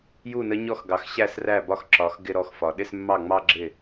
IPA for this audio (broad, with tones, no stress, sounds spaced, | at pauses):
j u˥˩ n ə˧˥ ɲ ɔ˥˩ x ɡ ɑ˩˧ x ɕ æ˥˩ s r æ˥˩ b ɒ˥˧ x ǁ ɒ˩˧ x ɡ ɪ˥˧ ɾ ɔ˥˩ x f ɒ˩˧ ɗ ɪ˥˧ s mː ɑ˥˩ ŋ͡m ɑ˥˧ ɡ͡ǁ ɪ˥˩